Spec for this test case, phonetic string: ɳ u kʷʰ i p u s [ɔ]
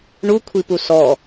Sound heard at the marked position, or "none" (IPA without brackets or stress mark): ɔ